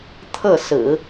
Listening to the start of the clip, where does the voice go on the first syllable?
falling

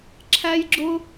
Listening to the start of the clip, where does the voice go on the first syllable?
high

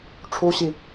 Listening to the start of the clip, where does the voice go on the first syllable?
high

